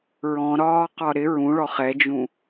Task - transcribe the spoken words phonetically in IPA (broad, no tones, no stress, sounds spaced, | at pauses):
ɹ ɔ̃ ɾ ɒː q ɒ ɾ ɪ ɹ ũ ɭ ɔ χ ɛ d͡ʒ ũ